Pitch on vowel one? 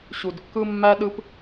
low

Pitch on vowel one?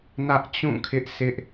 high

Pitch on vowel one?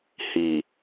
low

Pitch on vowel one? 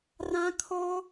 high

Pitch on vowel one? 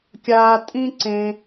high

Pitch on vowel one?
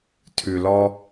low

